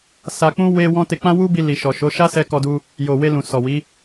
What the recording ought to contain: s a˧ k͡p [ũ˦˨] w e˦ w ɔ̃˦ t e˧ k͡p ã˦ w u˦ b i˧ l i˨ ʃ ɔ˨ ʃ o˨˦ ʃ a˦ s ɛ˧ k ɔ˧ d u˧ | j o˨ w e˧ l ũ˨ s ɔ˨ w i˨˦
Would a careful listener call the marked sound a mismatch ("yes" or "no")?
yes